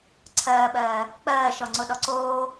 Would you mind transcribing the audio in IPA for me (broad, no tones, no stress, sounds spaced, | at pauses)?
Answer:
ǀʰ ɜː ɓ ɜː | k͡p ɜː ʃ ɔ ŋ͡ǀ o ɗ ɔ ǀ oː